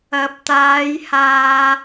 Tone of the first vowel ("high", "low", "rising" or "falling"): rising